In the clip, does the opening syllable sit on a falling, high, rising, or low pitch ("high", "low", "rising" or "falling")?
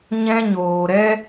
high